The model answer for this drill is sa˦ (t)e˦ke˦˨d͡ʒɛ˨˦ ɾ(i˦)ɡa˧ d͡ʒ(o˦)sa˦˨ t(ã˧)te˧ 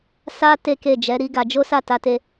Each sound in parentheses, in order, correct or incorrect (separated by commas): correct, correct, correct, incorrect